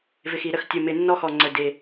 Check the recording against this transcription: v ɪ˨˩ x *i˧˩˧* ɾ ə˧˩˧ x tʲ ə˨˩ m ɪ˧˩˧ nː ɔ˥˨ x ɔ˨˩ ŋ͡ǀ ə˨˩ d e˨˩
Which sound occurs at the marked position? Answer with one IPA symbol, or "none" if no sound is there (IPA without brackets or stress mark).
i˧˩˧